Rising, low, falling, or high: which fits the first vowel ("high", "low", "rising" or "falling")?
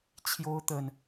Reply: high